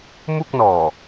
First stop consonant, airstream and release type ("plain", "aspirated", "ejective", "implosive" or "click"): plain